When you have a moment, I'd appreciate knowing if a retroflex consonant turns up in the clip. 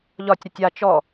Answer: no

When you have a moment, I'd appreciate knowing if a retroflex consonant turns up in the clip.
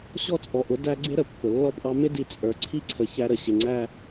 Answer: no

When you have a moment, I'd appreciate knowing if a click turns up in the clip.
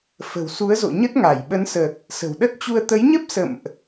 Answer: no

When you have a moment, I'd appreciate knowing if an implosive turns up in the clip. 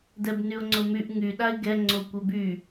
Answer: yes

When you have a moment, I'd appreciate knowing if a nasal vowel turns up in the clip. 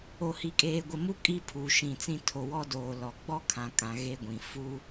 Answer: yes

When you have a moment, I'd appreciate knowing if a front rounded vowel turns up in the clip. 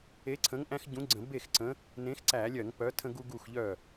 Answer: yes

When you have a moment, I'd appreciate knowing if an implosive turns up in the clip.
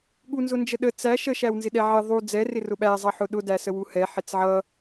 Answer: yes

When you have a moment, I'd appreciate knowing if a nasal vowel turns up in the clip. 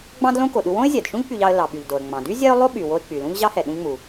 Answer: yes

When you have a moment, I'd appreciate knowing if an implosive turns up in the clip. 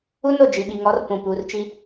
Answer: yes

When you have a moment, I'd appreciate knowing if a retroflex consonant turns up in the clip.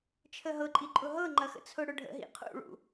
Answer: yes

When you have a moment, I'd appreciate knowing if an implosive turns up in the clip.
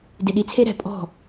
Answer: yes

